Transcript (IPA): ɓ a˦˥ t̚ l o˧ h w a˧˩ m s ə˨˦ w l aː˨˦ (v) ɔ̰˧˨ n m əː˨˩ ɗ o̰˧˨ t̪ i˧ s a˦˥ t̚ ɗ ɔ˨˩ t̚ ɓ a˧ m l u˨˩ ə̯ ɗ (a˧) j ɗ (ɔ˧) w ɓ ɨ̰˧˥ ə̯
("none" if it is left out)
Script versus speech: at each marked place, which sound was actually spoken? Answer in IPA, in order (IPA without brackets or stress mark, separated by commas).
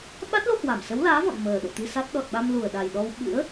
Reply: v, a˨˩, ɔ˧